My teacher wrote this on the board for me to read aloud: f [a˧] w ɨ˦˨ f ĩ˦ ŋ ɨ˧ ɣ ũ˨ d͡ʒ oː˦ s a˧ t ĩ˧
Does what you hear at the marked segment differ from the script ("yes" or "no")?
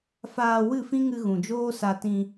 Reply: yes